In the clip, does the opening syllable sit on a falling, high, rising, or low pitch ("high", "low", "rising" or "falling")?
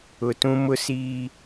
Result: low